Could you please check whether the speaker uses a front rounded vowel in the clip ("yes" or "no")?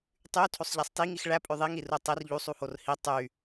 yes